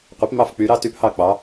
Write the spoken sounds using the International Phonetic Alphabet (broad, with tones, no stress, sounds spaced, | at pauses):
qʷ e˧˥ p m ɑ˥˨ f k͡p y˧˥ ɾ ɑ˧˥ t y˧˥ p h ɑ˥˨ k͡p ɑ˧˥